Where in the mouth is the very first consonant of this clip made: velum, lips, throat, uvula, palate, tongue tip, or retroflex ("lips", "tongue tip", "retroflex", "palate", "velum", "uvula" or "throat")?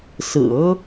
tongue tip